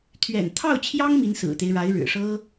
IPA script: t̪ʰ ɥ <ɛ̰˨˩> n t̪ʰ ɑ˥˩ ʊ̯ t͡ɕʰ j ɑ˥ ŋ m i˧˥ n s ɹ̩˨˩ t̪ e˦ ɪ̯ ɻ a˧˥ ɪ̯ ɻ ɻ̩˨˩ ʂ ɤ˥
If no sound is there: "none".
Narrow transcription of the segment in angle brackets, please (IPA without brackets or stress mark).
ɛ̰˨˩